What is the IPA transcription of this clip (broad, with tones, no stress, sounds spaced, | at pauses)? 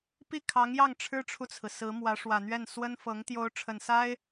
p i˥˩ kʰ ɑ˧˥ ŋ j ɑ˥˩ ŋ ʈ͡ʂʰ ɻ̩˥ ʈ͡ʂʰ u˨ t͡sʰ ɹ̩˩ s ɹ̩˧˥ m w ä˧˥ ʂ w ä˨˩ n̪ ɥ ɛ˥˩ n s w ə˥ n f ɤ˧˥ ŋ t̪ j o˧˥ ʊ̯ ʈ͡ʂʰ ə˨˩ n s a˥ ɪ̯